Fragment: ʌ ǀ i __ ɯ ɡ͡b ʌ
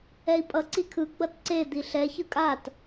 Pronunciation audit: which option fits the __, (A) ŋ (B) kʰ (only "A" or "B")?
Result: B